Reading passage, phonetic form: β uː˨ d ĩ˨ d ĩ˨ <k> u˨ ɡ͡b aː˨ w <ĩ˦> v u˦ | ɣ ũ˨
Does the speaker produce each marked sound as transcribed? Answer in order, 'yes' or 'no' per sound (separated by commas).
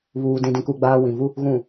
yes, no